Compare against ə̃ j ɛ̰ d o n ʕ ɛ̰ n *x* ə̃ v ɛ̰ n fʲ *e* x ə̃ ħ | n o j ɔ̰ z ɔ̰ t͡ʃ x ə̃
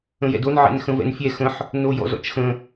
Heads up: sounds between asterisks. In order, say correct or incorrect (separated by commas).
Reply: correct, incorrect